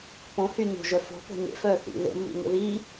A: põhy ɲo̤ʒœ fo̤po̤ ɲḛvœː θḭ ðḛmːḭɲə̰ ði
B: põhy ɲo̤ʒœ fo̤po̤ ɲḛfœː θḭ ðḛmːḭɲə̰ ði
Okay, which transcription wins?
B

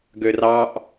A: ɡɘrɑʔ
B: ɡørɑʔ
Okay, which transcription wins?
B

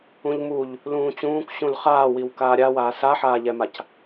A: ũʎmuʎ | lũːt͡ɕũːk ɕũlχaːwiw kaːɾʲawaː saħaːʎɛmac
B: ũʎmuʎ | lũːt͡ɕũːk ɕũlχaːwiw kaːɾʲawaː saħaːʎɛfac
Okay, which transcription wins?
A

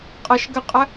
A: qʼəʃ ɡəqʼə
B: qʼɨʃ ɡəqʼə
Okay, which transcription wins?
A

